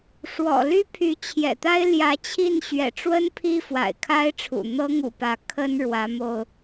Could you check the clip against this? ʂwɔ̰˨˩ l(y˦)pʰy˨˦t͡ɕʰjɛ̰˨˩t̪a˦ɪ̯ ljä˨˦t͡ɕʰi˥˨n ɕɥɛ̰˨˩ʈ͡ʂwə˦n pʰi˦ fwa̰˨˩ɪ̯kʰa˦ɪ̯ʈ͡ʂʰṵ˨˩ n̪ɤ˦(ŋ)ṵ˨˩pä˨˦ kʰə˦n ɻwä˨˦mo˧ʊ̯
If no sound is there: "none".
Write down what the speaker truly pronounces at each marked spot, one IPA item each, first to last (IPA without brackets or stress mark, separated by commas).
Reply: y˦, ŋ